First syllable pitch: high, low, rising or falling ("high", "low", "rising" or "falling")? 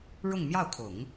falling